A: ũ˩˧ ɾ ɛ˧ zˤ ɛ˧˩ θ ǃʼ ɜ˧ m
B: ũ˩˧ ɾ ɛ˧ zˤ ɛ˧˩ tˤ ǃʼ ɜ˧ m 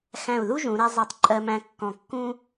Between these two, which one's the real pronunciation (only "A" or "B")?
B